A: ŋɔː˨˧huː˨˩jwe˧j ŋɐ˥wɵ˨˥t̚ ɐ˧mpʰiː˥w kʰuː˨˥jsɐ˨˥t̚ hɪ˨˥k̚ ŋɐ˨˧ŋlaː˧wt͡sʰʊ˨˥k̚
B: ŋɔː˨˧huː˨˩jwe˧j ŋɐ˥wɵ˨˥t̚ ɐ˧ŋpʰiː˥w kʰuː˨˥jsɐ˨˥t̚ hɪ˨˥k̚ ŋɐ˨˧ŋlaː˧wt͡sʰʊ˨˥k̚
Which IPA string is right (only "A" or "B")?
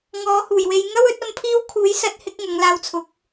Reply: A